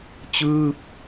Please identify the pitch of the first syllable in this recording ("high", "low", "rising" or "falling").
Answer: falling